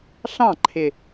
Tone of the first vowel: falling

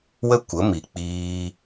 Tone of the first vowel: high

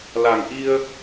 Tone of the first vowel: low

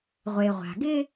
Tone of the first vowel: low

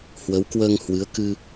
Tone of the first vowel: rising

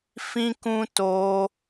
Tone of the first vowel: high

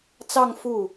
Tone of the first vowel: falling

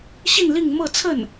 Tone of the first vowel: falling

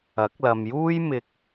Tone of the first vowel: rising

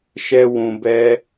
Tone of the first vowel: high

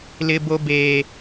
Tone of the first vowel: high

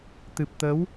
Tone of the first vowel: low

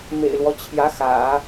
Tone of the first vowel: low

